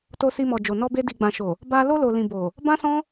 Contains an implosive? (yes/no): no